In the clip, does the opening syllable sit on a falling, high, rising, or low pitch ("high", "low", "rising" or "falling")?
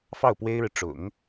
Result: falling